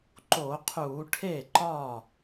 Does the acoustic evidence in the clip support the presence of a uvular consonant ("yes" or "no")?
yes